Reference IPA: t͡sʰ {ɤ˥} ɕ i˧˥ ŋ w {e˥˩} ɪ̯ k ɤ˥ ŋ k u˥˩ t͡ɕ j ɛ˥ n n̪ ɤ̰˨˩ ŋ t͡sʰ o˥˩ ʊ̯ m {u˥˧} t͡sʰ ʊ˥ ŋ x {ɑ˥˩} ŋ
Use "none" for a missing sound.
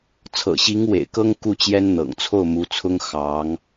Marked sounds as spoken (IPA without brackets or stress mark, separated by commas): ɤ̰˨˩, ḛ˨˩, u˧˥, ɑ˧˥